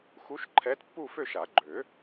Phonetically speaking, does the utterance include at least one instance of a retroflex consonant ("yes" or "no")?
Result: no